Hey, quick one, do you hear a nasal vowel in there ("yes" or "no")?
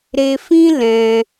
yes